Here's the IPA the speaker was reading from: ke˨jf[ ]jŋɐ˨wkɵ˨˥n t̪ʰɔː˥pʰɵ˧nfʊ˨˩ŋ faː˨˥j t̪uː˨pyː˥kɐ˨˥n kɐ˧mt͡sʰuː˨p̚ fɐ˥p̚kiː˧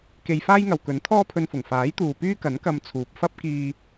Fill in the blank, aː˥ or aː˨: aː˥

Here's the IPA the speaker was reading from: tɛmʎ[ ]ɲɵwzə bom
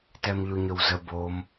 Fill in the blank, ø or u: u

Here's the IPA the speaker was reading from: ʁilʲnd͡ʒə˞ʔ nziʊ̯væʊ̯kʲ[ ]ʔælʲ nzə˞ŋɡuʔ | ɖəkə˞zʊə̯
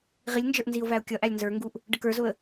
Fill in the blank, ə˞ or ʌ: ʌ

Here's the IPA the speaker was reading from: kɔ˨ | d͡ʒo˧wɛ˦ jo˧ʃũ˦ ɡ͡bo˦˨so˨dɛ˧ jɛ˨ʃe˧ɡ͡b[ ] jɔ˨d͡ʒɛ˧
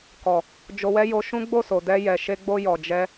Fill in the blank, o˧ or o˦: o˧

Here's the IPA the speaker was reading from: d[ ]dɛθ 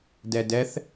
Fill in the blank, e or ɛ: ɛ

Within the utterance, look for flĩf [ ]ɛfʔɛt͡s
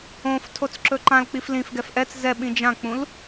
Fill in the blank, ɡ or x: ɡ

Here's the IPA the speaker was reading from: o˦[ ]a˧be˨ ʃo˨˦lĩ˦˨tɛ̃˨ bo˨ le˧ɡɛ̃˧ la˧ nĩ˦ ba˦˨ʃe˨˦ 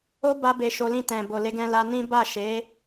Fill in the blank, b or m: b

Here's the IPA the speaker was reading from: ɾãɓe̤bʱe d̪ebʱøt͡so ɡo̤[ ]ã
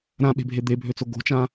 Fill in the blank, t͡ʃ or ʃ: t͡ʃ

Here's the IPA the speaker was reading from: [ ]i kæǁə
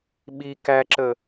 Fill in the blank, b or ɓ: ɓ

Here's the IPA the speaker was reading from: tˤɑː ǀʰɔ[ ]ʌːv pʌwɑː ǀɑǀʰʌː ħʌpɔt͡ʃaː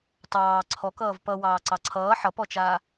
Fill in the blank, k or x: k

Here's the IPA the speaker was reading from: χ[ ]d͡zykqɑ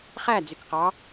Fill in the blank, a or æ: æ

